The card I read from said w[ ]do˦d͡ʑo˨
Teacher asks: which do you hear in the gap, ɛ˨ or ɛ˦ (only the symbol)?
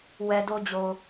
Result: ɛ˨